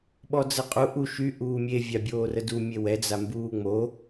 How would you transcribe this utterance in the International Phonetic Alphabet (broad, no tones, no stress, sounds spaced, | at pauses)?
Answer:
ɓ ɔ d͡z ə qʼ u ʔ u ʃ y ʔ uː mʲ e vʲ a bʲ oː r ə d u mʲ e w ɛ d͡z a m b uː ŋ͡m o